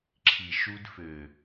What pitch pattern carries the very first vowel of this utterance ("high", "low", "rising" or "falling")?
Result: low